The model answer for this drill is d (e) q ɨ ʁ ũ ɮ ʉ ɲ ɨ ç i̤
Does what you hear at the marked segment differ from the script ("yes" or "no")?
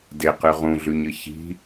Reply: no